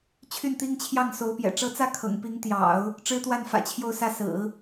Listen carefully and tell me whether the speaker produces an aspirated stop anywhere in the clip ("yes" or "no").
yes